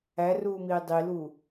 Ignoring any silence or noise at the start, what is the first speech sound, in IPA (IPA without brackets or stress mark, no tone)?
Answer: æ